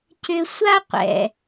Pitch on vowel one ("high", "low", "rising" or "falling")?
high